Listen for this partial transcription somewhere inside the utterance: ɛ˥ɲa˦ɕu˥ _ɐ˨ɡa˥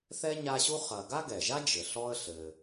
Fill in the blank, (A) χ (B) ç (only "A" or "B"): A